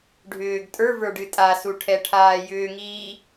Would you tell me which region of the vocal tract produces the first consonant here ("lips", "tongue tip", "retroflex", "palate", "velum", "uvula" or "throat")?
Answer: retroflex